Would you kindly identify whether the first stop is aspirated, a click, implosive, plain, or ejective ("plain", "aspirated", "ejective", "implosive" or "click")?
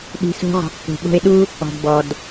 implosive